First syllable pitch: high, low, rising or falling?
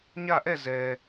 falling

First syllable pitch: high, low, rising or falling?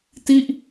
falling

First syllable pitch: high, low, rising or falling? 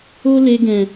high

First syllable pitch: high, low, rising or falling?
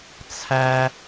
high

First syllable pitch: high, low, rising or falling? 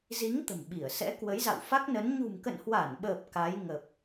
rising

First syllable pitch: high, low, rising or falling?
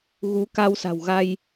rising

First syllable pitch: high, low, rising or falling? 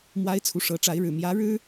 rising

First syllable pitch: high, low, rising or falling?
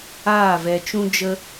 falling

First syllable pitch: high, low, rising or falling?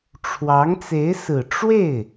rising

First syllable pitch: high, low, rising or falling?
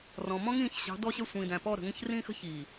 low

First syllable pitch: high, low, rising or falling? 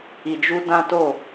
low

